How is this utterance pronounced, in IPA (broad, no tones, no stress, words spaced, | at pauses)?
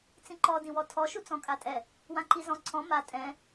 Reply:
t͡sĩǃɔ dĩwɔtʰɔ ʃut͡sɔ̃kʼatʼɛ | wãǃizɔ̃ ǀʰɔ̃ ma tʼɛ̃